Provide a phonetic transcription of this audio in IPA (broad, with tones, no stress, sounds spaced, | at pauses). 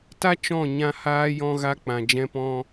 t a˦ t͡ʃ ɔ̃˦˨ ɲ ã˦ h aː˦ j ɔ̃˦ ɣ a˦ k͡p ã˨ d͡ʒ ɛ̃˧ p ɔ̃˧